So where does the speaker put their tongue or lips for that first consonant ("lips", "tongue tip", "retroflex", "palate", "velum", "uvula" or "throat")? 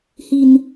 throat